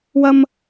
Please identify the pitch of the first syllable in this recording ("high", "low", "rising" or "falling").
high